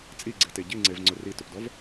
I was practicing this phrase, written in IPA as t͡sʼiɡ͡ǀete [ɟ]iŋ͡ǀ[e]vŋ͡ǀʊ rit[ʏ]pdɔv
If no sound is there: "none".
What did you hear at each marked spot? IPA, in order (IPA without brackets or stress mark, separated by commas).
ɟ, e, ʏ